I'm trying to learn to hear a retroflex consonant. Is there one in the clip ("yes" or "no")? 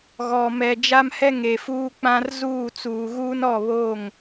no